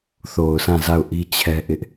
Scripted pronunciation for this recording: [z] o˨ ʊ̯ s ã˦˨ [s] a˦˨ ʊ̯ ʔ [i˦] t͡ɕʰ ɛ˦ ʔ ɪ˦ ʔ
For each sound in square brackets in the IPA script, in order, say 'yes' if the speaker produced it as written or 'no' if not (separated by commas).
no, no, yes